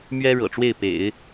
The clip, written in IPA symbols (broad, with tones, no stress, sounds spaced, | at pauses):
m ɥ ɛ˥ ɻ ɤ̰˨˩ ʈ͡ʂ w e˥˩ ɪ̯ p ḛ˨˩˦ ɪ̯